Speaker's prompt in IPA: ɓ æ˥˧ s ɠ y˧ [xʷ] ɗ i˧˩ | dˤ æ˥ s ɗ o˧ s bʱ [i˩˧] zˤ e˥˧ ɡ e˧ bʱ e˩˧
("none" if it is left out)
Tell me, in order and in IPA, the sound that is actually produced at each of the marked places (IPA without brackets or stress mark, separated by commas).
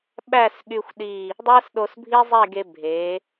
xʷ, i˥